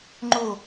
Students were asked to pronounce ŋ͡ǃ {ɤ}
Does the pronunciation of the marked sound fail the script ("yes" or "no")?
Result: yes